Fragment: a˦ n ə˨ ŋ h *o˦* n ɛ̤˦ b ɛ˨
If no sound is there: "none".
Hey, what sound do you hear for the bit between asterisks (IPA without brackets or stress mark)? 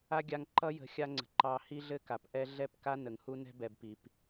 u˦